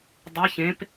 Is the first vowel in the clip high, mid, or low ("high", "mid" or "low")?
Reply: mid